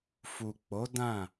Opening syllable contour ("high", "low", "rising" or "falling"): low